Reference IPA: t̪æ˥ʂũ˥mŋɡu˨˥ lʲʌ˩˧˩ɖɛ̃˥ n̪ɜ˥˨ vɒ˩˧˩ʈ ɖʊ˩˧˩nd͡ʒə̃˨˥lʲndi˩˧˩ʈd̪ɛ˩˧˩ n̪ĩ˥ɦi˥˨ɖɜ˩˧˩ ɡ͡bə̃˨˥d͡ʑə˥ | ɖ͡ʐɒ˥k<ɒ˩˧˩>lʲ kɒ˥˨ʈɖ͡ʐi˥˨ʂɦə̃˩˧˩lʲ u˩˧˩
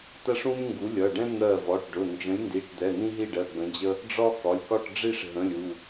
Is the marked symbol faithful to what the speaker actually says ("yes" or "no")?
yes